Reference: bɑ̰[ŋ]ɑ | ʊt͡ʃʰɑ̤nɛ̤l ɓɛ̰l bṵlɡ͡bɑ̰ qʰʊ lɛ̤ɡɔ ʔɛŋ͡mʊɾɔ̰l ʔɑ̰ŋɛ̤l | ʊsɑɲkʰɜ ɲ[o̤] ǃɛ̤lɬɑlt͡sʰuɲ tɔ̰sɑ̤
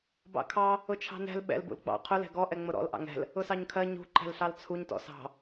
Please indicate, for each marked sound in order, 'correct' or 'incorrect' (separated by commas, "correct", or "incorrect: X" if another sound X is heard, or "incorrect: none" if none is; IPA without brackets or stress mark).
incorrect: kʰ, incorrect: ṳ